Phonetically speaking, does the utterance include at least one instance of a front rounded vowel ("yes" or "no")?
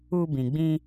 no